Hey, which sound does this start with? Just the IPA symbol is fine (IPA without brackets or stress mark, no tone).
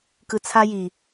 k